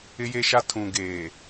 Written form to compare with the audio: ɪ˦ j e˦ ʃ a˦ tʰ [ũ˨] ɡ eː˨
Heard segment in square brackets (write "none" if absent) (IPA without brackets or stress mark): ũ˨